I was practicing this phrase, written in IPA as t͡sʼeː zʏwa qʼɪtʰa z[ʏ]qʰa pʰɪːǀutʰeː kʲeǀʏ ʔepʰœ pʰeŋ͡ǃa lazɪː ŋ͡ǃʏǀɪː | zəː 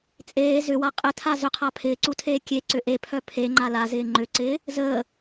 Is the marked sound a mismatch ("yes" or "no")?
no